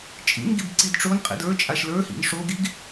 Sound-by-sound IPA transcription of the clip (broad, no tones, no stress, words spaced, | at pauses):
t͡ʃʼḭnɡib ǀidʈ͡ʂonqʼḭd ə˞t͡ʃʼaʃ lə˞hḭn ʂoɡiɡ